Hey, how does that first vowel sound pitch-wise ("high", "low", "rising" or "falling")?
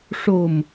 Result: low